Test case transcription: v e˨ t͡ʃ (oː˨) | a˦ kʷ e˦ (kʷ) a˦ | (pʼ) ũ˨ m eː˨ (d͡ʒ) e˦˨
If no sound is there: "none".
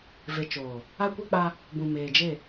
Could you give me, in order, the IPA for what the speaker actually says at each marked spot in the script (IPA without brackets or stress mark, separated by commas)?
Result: oː˨, k͡p, b, d͡ʒ